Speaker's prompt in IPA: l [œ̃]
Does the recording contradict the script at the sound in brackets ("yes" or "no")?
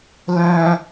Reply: no